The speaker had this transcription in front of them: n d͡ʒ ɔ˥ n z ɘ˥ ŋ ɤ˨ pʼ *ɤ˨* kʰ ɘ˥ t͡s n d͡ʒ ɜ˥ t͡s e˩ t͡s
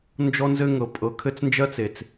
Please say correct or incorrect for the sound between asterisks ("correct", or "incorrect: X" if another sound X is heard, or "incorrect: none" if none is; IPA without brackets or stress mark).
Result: correct